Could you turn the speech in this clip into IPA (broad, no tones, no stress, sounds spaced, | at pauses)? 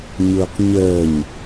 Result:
ɲ ʊː q ɲ əː ɲ